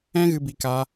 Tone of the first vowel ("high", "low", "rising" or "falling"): high